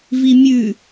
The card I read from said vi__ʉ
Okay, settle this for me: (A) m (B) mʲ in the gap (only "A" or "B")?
B